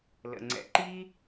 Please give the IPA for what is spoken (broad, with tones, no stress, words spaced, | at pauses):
lə̰˩ ŋ͡ǀɛ̰˨ ǃi˥